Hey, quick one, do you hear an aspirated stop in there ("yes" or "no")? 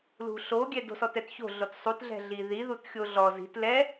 no